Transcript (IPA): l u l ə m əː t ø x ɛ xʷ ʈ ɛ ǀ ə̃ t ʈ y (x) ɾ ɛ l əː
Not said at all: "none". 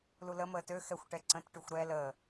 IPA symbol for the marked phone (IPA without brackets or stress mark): xʷ